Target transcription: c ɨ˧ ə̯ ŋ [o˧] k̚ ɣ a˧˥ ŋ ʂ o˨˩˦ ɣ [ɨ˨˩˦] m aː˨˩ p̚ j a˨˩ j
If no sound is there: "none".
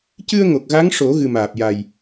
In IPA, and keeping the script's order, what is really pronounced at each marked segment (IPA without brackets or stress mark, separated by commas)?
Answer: o˨˩, ɨ˨˩